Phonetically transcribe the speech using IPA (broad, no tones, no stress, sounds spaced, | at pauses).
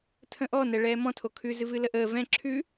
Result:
tʰ ə̃ ʔ ɔ n ɛ ɭ ɛː m ɔ̃ tʰ o kʰ ʉ z ɨ v ɨ l ə ʔ əː v ɛ̃ ǁʰ ʉ